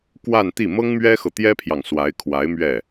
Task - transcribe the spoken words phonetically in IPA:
k w a˥˧ n t̪ i˥˩ m ɤ˥ ŋ m ɥ ɛ˥ x ɤ˨ t̪ j ɛ˥ pʰ j ɑ˨ ŋ s w a˧˥ ɪ̯ kʰ w a˧˥ ɪ̯ m ɥ ɛ˥˩

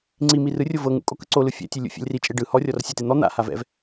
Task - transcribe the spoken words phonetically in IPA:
ŋ͡ǀ i m i r ɯ rʲ o v ɤ ŋ ṵ kʼ o k ɯ ǀ o l ɯ fʲ ɛ̰ tʲ e lʲ ṵ fʲ ɛ̰ lʲ r i t͡ʃʼ e ɖ ɯ h ɔ rʲ ɔ r sʲ ɛ t e n̪ ɔ n̪ a̰ h a v ɛ̰ v

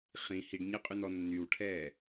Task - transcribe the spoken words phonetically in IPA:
χ ĩ h i ɖ ɲ ɛ qʼ y n ɔ nː y w ʈʰ ɛː

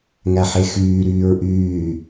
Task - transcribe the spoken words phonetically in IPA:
ŋ æ ħ e x yː ɾ yː ɹ ʔ yː

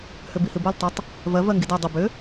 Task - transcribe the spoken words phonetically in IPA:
h ʏ b i h ɨ b o l tˤ ʏ tˤ | v ɜ v ɜ ŋ ɡ i d ɜ dˤ ʏ b ʏ

